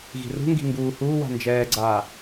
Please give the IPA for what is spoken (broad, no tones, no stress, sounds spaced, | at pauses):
ɣ i̤ r ṳ ŋ ɡ i̤ ŋ ɡ uː h uː w a̤ n d͡ʒ ɛː ɡ͡ǀ aː